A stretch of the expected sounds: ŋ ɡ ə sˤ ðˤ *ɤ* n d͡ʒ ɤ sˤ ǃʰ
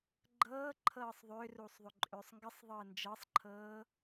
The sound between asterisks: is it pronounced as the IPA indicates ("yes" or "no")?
no